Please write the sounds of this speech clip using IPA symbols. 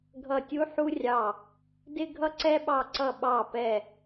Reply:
ɡʱʌ˧˩tʲu˦ħu˦rʲɑ˧˩ | dɪ˦ɡʱʌ˦ǀɛ˦ɓɑ˧˩ ǀʌ˧˩ɓɑ˧˩pɛ˧˩

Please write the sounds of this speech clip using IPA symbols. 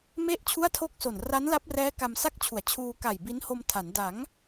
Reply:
me˥˩ʔ t͡ɕʰu˥˩a̯tʰo˥˩k̚so˨˩n ra˦˥nla˦˥p̚rɛː˦˥ ka˧msa˥˩k̚t͡ɕʰu˩˦a̯t͡ɕʰuː˧ ka˨˩jbi˦˥nho˧m tʰa˩˦n da˩˦ŋ

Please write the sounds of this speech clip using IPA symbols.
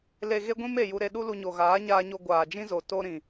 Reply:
le˨ɣe˧ɡʷĩ˧m e˨ju˧ ɾe˧ɗu˦lu˧ɲo˨ ɣaː˨˦ɲaː˧ɲo˧ ɡʷaː˨d͡ʒĩ˦zo˨ to˦ɾĩ˨

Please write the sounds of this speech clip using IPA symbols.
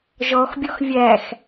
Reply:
ʒɔxbʲɔx vʲæx

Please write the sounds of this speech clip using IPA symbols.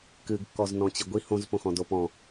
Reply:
kɨɡkːɔz nɔ̃t͡ɕiɡʷi hõzpõxɔ̃ dopɔ̃

